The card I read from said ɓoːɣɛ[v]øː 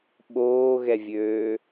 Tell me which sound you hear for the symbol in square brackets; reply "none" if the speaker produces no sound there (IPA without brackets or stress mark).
vʲ